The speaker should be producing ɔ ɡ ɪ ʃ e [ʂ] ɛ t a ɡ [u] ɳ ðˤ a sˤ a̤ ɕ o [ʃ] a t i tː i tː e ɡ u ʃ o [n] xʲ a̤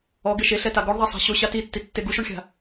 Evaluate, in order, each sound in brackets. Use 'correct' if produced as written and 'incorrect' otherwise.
incorrect, incorrect, incorrect, incorrect

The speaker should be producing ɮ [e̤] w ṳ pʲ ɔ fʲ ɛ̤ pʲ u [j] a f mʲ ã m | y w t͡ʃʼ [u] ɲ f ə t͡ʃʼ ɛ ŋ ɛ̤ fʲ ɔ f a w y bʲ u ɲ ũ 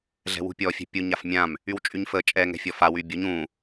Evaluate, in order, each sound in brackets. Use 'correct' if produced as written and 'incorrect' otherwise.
incorrect, incorrect, incorrect

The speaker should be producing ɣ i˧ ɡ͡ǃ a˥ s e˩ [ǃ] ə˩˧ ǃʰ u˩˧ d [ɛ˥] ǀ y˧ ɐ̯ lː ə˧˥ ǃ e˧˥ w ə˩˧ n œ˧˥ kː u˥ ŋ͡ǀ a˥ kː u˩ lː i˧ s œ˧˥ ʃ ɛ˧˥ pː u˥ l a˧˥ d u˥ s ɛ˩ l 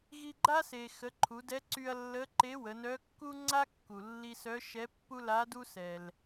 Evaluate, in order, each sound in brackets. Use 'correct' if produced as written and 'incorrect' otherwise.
incorrect, incorrect

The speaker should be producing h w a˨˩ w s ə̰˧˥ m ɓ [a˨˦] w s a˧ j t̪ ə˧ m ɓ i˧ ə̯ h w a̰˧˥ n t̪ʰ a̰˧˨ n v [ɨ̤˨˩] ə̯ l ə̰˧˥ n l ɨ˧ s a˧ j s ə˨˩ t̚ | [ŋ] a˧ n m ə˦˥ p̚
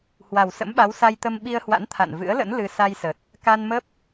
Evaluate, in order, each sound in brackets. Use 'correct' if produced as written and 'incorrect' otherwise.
correct, incorrect, incorrect

